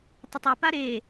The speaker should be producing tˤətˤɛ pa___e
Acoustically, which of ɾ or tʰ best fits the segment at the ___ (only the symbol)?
ɾ